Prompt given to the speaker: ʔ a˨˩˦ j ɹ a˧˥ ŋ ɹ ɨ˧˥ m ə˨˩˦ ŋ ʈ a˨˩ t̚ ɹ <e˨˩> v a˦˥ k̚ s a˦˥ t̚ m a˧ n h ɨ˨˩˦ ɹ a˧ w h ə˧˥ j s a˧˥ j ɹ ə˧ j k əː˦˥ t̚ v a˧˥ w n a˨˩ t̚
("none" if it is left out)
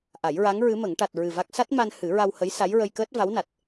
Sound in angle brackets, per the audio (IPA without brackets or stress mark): ɨ˨˩